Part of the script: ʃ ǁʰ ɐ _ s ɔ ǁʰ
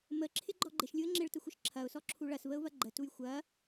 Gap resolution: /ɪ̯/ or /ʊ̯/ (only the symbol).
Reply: ʊ̯